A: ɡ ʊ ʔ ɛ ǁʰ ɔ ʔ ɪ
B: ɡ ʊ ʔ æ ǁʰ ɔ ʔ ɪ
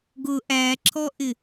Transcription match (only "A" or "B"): B